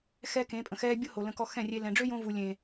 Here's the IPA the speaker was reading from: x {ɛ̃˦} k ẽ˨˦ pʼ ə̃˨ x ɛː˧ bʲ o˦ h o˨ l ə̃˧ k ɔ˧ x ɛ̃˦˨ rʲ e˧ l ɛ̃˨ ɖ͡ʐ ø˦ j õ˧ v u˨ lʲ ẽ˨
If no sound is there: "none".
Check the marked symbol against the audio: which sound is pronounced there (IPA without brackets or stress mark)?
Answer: ɛ˦